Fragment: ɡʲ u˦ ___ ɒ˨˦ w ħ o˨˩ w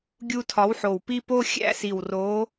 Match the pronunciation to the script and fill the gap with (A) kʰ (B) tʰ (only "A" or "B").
B